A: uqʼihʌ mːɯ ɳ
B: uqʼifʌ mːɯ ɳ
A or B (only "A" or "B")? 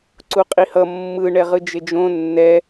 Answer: A